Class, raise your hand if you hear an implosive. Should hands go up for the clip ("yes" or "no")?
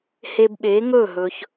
yes